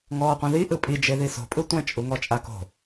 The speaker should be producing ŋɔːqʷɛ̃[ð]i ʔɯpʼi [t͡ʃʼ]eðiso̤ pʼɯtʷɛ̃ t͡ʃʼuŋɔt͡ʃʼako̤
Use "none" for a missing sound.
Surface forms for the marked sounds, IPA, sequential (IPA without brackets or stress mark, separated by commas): ð, d͡ʒ